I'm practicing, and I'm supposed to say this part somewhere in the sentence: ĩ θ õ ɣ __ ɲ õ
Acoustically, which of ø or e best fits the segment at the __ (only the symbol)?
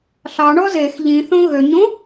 ø